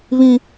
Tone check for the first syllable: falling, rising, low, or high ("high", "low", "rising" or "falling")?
high